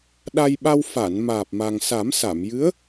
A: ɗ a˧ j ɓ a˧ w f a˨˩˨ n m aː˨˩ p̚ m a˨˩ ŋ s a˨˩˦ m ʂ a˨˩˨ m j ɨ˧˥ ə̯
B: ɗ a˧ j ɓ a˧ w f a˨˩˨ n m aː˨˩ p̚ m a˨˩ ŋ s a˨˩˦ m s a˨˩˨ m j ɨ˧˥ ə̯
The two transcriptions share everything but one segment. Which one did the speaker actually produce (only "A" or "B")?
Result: B